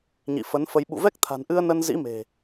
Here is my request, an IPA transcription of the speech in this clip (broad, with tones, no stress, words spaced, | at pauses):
ɲḭ˧˨ fə˨˦nfə˧j ɓṵ˧˨vɛ˦˥k̚t̪ʰa̤˨˩nʔɨ˧ə̯ nə˧nzḭ˧˥me̤˨˩